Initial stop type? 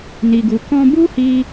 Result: plain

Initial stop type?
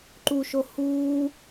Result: click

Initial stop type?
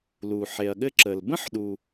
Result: implosive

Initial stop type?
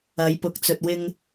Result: plain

